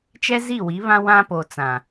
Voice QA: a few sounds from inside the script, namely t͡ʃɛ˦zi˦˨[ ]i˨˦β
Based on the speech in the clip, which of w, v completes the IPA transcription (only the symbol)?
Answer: w